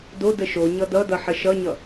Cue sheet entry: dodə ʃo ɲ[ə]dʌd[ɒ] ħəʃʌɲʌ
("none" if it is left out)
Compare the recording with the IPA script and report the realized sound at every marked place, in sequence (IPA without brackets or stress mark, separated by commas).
ʌ, ʌ